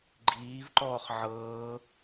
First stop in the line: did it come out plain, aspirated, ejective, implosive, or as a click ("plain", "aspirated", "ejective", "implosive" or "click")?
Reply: click